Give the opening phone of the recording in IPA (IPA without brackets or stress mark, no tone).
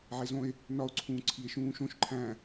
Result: ʕ